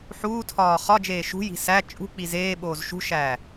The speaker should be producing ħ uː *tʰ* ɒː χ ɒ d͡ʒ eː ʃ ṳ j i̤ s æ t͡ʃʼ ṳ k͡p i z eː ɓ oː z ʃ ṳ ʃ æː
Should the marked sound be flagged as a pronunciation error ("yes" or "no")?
no